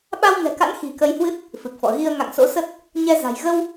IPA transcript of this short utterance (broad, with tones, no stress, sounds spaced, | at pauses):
ɓ a˧ w ŋ ɛ̤˨˩ k a̰˧˥ n x i̤˨˩ k ə˧ j h w ɨ˦˥ t̚ | f ɨ˨˩ k̚ f ɔ̰˧˨ ɣ i˧ ə̯ ŋ a̰˧˨ ŋ s o̰˧˥ s ə˦˥ t̚ | ɲ ɛ˧ z a̤˨˩ j ɣ ə˧ w